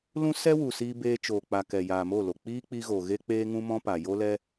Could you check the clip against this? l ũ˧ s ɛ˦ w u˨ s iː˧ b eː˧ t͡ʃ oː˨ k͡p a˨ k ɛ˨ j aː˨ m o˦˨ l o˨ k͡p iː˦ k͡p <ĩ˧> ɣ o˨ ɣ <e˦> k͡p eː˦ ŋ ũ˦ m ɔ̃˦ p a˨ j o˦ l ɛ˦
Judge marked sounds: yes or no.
no, yes

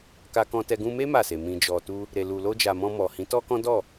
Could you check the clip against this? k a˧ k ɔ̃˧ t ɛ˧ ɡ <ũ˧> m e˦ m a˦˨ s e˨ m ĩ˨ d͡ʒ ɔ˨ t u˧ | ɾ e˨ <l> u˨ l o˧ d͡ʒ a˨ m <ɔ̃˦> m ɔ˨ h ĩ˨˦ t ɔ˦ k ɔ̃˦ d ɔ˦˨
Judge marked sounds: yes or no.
yes, yes, no

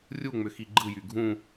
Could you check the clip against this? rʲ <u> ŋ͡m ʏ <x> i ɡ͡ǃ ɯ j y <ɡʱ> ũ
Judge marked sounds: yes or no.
yes, yes, yes

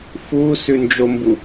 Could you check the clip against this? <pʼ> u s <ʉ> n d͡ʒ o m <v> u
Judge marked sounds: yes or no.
no, yes, no

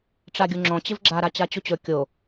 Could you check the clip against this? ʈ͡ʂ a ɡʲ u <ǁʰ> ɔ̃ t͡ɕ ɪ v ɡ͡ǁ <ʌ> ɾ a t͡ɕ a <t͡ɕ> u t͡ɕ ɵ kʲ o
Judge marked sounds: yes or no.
no, no, yes

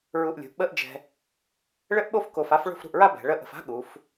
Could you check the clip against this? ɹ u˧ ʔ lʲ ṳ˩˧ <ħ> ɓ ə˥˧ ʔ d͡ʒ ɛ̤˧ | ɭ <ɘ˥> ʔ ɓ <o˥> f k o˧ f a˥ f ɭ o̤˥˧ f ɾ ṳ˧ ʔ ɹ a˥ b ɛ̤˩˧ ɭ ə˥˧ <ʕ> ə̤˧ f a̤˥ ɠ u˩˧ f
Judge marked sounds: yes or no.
no, yes, yes, no

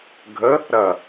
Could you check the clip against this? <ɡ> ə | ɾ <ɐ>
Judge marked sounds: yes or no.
no, yes

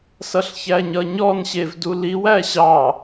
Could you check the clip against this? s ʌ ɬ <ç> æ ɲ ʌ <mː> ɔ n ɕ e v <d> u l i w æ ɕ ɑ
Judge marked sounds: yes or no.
yes, no, yes

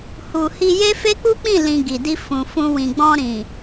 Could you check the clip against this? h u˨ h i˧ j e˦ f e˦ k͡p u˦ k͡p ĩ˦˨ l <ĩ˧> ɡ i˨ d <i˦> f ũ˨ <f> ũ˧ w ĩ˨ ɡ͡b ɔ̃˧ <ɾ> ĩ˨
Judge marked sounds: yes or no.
yes, no, yes, yes

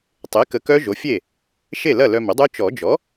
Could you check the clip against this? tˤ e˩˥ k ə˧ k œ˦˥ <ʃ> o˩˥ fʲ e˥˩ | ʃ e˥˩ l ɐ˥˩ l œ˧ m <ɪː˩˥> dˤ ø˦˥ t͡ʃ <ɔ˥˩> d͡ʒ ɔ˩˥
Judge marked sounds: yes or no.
no, no, no

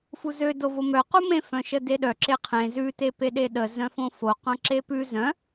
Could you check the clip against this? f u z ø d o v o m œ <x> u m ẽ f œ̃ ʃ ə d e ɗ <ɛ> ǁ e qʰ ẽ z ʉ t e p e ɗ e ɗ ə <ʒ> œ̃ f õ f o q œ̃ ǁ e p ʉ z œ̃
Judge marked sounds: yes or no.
no, no, no

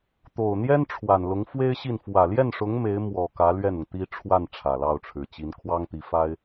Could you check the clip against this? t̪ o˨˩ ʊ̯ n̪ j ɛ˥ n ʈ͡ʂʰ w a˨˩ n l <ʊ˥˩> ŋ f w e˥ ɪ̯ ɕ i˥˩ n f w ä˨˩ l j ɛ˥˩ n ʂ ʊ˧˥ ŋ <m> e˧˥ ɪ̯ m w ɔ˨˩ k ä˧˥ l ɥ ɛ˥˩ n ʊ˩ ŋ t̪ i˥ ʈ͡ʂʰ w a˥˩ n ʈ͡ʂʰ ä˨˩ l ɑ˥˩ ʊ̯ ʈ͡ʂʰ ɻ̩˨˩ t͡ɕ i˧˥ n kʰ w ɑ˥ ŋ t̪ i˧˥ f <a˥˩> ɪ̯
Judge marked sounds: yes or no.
no, yes, no

